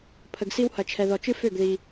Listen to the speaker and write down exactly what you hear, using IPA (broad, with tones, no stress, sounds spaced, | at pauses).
pʰ ə˨ ɡ s i˥ w h ɐ˨ t͡ʃʰ ɛ˨ ð ɔ˨ t͡ʃ ɨ˥ f ø˥˩ ɡ ð i˨